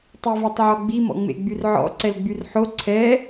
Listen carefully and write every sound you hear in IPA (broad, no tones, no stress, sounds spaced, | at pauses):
tˤ i v y tˤ ʕ ɔ ɡ͡b i m ɔ̰ ŋ͡m ḛ ɡ͡b y r ʕ ɔ̰ ǀ ɛ l ɡ͡b y r ħ o ǀʰ ɛ